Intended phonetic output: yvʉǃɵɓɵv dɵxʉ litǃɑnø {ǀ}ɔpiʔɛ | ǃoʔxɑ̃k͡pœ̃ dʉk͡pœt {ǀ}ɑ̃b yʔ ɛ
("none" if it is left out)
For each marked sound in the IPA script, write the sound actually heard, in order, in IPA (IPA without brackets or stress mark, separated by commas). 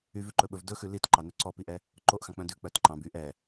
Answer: ǀ, ǃ